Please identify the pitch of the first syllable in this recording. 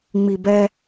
low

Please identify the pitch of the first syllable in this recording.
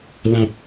low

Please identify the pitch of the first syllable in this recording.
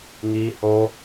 high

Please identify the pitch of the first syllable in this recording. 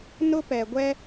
high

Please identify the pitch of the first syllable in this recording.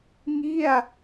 falling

